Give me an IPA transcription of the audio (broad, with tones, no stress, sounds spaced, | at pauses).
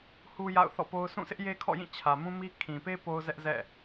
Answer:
h u˦ j a̰˦˨ ʊ̯ θ ɔ̰˦˨ p o˦ ʊ̯ s ũ˦˨ sʰ ɪ˦ ʔ j e˦ kʰ ɔ̰˦˨ j ĩ˦˨ t͡ɕʰ ä˨ m ũ˦ m i˦ kʰ ĩ˨ p e˦ p o˦ ʊ̯ z ɛ˦ ʔ z ɛ̰˦˨